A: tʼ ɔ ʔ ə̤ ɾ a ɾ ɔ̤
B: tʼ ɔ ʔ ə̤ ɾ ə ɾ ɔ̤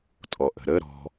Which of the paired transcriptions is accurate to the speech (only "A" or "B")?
B